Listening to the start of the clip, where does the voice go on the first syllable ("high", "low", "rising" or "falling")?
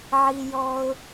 low